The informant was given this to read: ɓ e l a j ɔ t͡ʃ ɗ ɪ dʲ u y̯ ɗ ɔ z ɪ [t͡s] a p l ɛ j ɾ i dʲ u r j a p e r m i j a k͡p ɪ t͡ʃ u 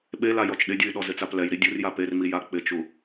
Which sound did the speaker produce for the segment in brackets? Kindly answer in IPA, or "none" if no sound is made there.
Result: t͡s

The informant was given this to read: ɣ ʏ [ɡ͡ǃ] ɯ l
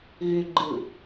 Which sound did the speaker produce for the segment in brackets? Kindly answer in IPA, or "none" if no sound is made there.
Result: ɡ͡ǃ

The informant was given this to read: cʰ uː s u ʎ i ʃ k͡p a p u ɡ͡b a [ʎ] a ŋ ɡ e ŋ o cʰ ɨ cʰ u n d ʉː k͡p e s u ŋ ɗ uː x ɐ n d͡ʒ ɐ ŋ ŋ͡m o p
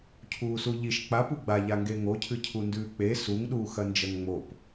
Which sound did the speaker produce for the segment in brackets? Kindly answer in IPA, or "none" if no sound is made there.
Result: ʎ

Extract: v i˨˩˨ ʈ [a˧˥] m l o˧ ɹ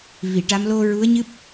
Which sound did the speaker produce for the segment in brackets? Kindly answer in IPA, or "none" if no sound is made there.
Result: a˧˥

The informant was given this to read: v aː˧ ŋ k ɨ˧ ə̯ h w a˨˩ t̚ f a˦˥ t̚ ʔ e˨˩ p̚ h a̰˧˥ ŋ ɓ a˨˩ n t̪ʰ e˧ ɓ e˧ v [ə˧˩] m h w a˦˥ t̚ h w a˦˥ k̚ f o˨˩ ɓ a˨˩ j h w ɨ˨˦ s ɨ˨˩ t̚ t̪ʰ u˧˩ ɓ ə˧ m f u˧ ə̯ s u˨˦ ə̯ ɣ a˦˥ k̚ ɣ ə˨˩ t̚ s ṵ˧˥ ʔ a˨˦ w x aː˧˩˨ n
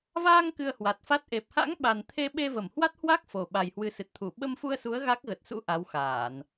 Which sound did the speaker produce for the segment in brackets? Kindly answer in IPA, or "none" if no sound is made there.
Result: ə˧˩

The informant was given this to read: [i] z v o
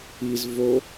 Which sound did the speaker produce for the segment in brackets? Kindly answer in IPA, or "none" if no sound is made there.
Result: i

